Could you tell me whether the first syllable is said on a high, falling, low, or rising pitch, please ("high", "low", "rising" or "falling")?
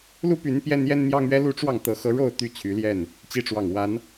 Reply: high